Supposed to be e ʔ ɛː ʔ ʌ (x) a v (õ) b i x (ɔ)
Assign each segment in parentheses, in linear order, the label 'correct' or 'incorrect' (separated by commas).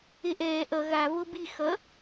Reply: incorrect, incorrect, incorrect